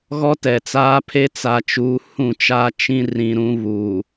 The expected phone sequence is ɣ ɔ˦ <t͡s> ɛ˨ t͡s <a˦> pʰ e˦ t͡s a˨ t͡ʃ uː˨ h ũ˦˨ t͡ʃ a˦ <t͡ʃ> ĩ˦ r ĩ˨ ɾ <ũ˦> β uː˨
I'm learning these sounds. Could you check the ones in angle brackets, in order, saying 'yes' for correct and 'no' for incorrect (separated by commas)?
no, no, yes, no